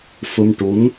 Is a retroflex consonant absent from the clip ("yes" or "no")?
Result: no